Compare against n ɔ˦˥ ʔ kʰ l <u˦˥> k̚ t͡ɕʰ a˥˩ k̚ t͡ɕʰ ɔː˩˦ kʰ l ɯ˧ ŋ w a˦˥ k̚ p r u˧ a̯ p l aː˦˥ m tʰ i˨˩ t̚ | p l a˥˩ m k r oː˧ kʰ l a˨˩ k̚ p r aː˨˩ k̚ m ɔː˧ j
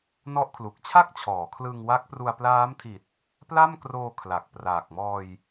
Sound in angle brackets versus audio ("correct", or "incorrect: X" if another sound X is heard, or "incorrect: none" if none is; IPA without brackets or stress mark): incorrect: u˨˩